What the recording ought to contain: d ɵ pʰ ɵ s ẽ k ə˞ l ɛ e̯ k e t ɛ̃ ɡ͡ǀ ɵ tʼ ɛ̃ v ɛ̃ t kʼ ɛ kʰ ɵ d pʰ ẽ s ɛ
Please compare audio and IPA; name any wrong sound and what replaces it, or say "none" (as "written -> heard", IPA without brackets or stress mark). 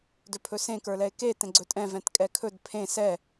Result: none